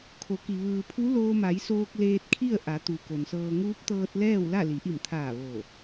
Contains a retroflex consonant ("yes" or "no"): no